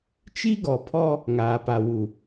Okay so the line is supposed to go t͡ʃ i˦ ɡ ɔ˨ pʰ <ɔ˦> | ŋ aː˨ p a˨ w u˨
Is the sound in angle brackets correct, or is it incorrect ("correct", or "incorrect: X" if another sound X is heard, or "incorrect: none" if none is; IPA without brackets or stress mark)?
correct